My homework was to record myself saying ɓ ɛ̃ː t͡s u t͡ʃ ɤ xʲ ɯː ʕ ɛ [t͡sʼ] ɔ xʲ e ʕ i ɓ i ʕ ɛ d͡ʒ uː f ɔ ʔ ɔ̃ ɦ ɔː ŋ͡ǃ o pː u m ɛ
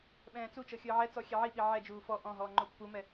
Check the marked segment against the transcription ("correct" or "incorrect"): incorrect